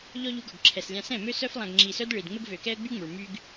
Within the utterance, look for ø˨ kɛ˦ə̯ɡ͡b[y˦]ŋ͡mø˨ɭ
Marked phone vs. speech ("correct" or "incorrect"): correct